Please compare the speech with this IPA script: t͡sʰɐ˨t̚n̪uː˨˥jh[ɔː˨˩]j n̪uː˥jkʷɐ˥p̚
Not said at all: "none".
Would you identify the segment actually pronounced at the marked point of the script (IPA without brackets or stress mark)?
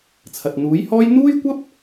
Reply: ɔː˥